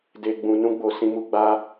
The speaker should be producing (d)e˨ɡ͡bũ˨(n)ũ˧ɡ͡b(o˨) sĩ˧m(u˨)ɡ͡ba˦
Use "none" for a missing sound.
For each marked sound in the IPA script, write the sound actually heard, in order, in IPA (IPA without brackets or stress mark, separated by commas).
d, n, o˨, u˧